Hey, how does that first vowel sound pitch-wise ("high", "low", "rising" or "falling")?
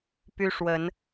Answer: high